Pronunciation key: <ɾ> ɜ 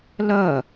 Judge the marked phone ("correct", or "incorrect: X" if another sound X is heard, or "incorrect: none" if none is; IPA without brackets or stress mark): incorrect: l